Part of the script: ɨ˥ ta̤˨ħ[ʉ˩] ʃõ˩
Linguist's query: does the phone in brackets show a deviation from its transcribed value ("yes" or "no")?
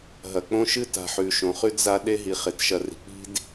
no